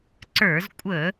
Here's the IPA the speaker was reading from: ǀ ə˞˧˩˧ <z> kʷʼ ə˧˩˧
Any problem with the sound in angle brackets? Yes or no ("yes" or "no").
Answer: no